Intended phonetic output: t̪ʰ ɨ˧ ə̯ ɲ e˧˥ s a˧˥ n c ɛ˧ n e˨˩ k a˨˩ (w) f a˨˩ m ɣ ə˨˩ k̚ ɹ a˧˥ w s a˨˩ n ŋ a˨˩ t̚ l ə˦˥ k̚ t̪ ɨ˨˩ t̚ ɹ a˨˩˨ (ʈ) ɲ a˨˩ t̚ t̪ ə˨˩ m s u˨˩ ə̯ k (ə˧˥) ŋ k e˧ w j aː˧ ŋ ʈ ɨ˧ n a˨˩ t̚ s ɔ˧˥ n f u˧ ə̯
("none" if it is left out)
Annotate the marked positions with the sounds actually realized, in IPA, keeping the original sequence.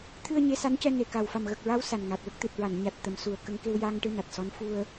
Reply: w, n, ə˧

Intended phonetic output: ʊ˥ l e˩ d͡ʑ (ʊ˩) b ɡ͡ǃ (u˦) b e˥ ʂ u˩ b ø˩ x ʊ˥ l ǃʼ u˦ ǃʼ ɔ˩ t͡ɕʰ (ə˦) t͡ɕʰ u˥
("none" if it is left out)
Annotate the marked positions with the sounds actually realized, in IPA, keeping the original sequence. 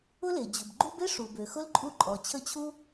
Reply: ʊ˩, u˦, ə˦

